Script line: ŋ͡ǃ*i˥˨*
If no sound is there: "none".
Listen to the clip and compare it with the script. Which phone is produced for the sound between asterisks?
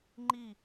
i˥˨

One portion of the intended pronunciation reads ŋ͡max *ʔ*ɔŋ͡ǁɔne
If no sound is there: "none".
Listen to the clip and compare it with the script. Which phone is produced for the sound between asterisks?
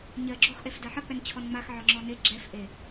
ʕ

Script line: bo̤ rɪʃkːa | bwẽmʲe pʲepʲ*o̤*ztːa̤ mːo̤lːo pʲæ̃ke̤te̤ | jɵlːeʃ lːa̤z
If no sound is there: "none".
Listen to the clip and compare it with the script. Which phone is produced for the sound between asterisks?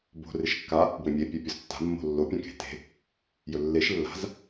o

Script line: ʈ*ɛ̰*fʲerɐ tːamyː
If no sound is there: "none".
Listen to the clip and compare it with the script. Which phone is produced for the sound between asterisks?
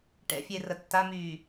ɛ̰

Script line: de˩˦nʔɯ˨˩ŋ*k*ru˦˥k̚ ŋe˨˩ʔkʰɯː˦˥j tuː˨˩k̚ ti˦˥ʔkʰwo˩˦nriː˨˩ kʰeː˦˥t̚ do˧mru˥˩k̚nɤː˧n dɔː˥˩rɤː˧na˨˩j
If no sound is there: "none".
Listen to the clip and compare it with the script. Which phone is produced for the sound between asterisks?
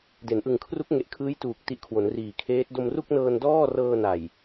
kʰ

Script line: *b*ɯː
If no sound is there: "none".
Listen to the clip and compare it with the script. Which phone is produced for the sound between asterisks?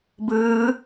b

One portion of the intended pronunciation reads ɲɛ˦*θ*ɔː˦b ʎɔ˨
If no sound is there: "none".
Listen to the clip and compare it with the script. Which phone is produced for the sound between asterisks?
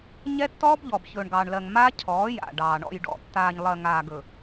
tː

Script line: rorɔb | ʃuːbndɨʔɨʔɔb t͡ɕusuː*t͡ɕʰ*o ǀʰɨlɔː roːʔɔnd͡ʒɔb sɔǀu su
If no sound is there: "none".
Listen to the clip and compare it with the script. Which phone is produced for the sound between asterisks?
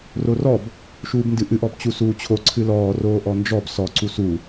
t͡ɕʰ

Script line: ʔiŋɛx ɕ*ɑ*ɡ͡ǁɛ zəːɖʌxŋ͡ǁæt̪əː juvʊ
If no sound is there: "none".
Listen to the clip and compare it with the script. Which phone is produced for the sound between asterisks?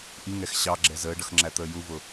ɑ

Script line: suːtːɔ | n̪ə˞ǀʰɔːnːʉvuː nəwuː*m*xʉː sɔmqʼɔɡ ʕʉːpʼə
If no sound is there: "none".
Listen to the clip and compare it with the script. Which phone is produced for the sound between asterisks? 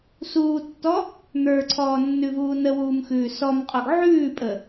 m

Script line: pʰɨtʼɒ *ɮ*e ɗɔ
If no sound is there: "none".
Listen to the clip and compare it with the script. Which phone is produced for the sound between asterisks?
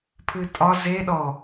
z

